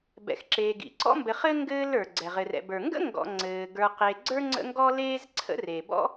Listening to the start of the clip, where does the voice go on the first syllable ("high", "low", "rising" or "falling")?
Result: low